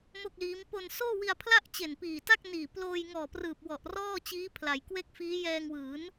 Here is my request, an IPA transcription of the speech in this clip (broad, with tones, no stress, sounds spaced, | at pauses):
m o˥˩ k̚ l iː˦˥ m p o˧ n s oː˥˩ w i˧ a̯ pʰ l a˥˩ ʔ t͡ɕ e˨˩ n p iː˨˩ t a˥˩ k̚ n iː˨˩ p l oː˧ j ŋ ɔː˨˩ p r ɯː˨˩ p̚ w ɔ˨˩ ʔ r ɔː˥˩ t͡ɕ iː˦˥ pʰ l a˩˦ j k w e˥˩ k̚ f iː˦˥ j ɛː˧ ŋ w ɯː˩˦ n